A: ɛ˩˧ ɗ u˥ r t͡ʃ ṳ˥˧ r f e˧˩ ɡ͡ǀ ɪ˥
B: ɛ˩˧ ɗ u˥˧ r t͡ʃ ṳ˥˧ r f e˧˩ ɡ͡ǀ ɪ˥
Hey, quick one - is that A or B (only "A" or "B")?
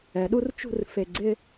A